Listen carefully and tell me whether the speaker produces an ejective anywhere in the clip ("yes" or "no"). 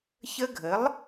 no